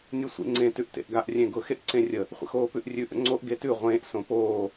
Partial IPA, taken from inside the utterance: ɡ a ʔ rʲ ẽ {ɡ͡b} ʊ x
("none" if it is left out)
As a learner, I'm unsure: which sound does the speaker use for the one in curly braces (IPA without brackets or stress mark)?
ɡ